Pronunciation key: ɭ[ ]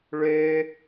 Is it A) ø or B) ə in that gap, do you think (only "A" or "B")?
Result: A